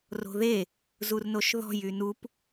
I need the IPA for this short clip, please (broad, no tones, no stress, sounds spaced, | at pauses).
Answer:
r o̤ ð e | z u r n o ʃ ð ɔ̤ j y n u p